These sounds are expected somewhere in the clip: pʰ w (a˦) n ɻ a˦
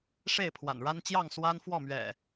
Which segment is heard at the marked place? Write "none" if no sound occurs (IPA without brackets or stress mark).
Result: a̰˨˩